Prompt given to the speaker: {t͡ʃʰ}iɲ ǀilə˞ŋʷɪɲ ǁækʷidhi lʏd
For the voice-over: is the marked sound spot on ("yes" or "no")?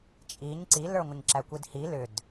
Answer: no